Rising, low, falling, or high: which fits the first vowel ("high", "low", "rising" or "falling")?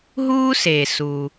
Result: high